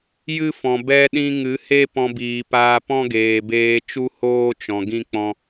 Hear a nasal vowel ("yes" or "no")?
yes